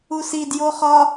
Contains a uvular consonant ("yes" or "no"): yes